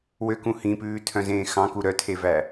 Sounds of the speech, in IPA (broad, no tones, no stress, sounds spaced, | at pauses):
w ø k ũ h ĩ p ʉː tʰ œ̃ z ẽː x ɑ̃ k u ɾ œ tʰ e v æ